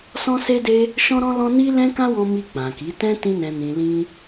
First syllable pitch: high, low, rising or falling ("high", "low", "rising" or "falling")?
high